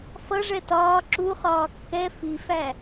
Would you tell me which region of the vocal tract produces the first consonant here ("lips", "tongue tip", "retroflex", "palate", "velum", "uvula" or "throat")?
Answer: lips